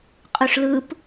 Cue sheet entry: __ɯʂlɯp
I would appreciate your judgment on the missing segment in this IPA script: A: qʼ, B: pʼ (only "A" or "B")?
A